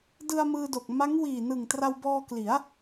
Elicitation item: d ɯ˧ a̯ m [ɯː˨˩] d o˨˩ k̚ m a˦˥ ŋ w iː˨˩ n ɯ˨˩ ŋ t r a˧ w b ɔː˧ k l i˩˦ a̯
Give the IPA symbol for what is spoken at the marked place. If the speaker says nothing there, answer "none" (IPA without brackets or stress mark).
ɯː˧